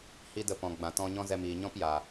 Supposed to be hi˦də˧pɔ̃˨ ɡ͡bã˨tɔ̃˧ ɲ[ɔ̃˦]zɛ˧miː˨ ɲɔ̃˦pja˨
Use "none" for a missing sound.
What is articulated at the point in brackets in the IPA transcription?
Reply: ɔ̃˦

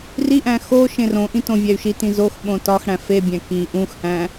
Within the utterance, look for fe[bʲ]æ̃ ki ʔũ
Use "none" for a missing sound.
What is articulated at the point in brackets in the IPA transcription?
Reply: bʲ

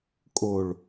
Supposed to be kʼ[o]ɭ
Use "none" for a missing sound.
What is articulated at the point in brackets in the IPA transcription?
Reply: o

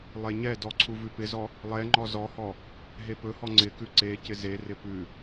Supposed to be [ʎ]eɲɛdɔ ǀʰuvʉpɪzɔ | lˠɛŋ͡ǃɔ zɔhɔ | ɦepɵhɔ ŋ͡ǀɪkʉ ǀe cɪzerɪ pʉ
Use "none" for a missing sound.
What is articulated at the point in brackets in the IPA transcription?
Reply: lˠ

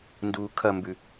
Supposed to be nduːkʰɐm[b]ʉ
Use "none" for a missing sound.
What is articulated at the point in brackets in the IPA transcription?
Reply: b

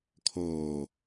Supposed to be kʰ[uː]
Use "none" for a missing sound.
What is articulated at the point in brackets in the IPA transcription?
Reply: oː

